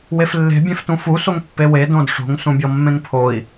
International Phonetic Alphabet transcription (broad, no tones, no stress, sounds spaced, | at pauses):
w e f lː e̤ bʲ ẽ f t ũ f u s o ŋ pː e w e d õ d ʂ o̤ ŋ s ũ bʲ ɔ mː ẽ ŋ pʰ o i̯